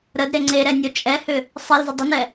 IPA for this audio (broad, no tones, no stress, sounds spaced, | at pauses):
ɾ ə d ɾ e ŋ͡ǀ e ɾ ɛ nʲ o t͡ʃʼ ɛ h ʏ | sˤ i l z ʏ dˤ ə n ɛ